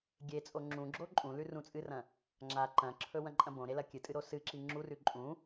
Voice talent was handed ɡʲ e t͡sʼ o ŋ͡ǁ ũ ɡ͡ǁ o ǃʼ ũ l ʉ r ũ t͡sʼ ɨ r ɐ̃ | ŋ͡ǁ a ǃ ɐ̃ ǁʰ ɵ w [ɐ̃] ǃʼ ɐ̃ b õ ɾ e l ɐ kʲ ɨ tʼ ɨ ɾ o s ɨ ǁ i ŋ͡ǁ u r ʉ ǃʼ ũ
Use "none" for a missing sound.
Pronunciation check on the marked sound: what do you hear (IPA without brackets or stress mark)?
ɐ̃